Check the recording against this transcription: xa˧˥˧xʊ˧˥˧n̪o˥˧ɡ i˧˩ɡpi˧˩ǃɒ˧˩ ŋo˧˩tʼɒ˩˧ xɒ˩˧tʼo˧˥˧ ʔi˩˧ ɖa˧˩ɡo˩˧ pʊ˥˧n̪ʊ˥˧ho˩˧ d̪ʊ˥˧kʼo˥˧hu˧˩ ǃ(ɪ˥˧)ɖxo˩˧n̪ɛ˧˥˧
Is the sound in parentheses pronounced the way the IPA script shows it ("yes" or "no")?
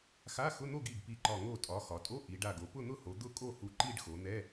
no